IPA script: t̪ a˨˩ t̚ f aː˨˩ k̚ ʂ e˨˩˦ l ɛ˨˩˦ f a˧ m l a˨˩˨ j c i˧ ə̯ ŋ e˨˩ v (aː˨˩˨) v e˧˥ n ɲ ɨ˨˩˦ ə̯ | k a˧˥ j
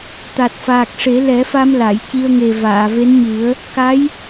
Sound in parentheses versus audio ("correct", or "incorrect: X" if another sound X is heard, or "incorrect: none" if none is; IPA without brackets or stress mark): correct